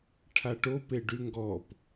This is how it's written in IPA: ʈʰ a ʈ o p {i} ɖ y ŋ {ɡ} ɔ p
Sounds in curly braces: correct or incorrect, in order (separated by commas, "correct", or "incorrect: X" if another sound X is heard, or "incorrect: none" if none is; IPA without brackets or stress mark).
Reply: incorrect: e, correct